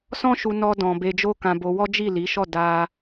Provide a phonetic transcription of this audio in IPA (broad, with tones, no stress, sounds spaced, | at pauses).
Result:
s ɔ̃˦ ʃ u˧ n ɔ˧ d ɔ̃˨ b e˧ d͡ʒ o˦ k ã˧ b o˧ w ɔ˦ d͡ʒ i˦˨ l i˨˦ ʃ ɔ˦˨ d a˧